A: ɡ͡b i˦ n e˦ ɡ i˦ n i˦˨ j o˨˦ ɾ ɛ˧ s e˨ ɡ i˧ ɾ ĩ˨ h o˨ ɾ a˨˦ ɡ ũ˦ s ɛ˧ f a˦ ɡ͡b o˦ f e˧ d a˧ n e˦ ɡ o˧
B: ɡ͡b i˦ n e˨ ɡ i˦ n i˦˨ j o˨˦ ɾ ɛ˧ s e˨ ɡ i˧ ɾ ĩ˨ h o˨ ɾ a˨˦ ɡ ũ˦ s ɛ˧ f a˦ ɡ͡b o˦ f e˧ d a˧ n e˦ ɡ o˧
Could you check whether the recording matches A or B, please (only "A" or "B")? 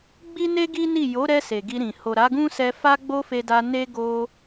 A